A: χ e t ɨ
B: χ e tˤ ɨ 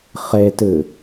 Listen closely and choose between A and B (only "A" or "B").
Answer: A